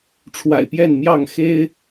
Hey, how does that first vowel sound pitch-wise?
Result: low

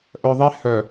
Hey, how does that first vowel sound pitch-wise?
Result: low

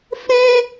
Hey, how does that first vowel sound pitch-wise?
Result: high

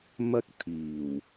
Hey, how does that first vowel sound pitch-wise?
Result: high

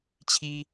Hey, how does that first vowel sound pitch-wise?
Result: high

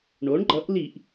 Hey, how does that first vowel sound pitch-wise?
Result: rising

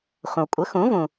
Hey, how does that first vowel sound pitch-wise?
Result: low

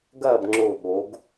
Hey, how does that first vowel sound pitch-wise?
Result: falling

